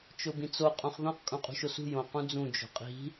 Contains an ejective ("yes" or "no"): yes